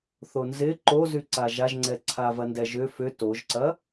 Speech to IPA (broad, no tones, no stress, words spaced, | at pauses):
θonzɪ ǃozyǀa ʒaʒŋ͡ǀɛǀʰa vɐndɛʒʏ fʏ toʒǀɐ